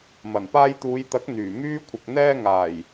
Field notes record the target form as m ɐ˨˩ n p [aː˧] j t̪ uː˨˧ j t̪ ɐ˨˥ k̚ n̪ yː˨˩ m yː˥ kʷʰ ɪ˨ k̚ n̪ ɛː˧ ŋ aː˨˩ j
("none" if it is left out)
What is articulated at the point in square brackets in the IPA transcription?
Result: aː˧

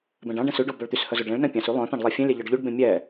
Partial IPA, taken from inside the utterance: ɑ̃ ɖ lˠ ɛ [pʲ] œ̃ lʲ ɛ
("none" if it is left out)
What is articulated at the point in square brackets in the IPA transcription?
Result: fʲ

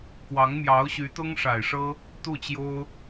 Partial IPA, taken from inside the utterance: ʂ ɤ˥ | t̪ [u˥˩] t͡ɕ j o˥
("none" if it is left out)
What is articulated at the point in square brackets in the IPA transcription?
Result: u˥˩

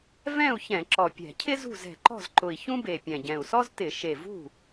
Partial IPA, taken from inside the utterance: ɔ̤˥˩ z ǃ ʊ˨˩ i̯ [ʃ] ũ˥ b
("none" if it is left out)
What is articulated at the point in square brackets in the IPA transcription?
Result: ç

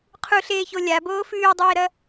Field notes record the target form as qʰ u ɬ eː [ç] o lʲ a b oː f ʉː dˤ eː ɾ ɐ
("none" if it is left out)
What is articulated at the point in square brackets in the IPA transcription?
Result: ç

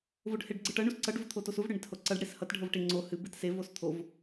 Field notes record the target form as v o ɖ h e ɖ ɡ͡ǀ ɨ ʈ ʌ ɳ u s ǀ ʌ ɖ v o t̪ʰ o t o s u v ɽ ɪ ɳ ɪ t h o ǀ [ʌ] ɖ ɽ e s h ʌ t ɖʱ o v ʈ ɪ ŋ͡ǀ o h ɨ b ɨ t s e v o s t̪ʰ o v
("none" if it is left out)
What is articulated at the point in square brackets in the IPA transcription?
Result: ʌ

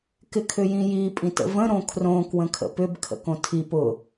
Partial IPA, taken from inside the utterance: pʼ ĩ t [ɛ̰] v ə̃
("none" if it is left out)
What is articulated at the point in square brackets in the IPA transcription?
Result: ə̰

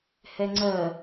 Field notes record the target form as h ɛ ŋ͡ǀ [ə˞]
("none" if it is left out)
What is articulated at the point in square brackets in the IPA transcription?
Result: ɜ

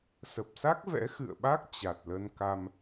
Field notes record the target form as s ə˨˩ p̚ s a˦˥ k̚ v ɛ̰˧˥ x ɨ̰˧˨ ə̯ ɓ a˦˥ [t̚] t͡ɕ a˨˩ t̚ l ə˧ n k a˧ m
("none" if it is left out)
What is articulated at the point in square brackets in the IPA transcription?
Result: k̚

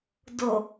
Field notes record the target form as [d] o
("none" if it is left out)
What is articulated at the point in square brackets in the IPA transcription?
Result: d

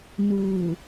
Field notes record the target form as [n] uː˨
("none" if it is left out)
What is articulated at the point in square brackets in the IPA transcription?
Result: n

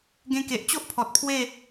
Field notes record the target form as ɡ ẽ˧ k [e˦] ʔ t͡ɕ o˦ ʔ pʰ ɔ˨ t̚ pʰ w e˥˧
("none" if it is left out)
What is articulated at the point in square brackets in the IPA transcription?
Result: e˨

